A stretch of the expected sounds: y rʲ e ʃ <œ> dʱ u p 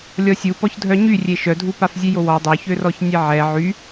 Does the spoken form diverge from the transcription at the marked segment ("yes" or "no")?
no